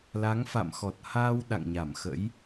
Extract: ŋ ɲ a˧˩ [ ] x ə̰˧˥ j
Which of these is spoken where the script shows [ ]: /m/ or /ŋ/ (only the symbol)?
m